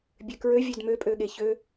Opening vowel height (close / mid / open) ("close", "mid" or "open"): mid